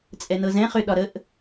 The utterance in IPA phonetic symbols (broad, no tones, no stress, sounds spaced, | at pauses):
t͡sʼ ɛ n ɤ z ɛ̃ χ ʏ ɗ ɒ ɾ ə ʔ